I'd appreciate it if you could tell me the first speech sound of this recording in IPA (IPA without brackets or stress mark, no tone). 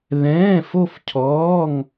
ð